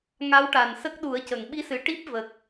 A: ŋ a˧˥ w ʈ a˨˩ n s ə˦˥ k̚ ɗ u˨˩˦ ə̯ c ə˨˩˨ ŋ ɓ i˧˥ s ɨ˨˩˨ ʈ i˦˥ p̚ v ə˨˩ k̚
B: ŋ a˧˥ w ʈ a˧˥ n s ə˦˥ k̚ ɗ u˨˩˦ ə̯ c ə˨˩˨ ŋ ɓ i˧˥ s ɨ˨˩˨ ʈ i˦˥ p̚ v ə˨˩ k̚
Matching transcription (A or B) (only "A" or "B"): A